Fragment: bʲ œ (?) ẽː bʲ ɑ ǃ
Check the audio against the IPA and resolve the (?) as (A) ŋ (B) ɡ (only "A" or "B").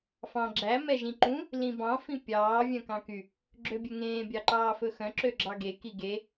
A